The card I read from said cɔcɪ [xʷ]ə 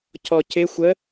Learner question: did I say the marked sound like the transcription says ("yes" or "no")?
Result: yes